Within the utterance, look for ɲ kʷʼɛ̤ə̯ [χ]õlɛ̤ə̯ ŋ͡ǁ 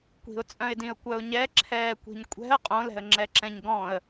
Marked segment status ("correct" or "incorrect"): incorrect